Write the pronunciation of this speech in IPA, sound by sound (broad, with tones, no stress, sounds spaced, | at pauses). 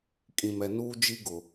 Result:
kʼ ĩ˨ m ɛ˨ n uː˦ d͡ʒ i˦ ɡ ʊ˨